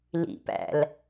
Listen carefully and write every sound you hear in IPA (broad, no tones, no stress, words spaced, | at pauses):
lḭpæ̰l